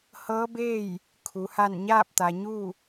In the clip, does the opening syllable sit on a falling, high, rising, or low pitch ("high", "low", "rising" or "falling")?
rising